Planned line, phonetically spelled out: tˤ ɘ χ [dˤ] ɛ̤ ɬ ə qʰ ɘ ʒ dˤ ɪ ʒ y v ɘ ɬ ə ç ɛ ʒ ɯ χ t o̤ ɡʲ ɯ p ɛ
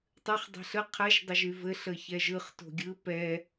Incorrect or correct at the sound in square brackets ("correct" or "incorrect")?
correct